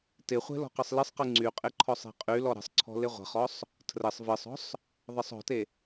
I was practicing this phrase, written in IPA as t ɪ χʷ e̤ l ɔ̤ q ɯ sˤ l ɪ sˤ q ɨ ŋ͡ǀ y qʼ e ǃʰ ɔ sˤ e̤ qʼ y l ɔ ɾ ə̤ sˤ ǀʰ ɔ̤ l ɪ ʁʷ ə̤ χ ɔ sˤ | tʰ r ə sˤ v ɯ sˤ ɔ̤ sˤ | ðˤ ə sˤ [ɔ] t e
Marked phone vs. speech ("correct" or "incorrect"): incorrect